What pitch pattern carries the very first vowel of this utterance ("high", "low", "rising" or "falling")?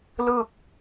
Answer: falling